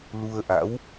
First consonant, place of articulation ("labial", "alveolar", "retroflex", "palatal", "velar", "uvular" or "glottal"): alveolar